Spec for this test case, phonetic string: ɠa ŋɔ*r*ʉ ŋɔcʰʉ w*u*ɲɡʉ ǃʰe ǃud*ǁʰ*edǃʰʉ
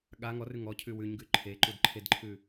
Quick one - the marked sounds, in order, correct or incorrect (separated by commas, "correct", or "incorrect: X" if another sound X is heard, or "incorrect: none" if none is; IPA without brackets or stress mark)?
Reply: correct, incorrect: ʉ, incorrect: ǃʰ